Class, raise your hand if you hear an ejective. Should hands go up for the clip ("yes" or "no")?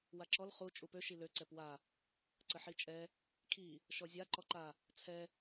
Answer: yes